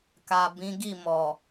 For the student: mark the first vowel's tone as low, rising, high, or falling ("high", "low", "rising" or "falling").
low